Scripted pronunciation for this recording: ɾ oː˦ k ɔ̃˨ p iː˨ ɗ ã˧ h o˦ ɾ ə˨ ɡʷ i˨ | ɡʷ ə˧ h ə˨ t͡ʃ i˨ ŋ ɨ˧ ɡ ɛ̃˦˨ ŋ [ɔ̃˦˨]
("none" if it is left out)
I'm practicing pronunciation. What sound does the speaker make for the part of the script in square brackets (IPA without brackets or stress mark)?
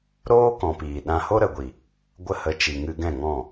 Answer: ɔ̃˦˨